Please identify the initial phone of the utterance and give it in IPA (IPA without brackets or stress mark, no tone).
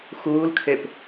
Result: x